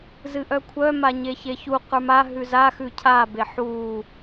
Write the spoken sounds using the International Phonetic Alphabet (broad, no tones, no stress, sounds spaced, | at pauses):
z ɨ ʔ œ kʷʰ œ m a ɲ e ç e ç u q ə˞ m a ɦ ʉ z a x ʉ cʰ a b e ħ u